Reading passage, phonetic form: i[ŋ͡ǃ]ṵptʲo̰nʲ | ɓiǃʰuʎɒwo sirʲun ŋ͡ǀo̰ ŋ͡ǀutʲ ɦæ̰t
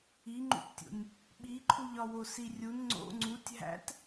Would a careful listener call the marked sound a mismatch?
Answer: no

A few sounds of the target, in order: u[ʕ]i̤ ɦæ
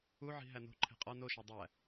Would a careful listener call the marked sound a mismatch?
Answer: no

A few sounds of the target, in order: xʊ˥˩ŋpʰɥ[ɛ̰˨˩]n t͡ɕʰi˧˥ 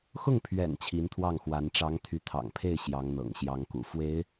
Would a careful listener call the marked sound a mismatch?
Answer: no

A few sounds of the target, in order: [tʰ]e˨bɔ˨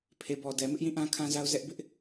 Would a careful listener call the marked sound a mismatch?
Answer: yes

